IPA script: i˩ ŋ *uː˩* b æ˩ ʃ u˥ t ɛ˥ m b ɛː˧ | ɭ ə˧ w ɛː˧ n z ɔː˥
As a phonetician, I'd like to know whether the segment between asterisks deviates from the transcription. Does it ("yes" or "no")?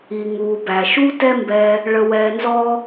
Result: no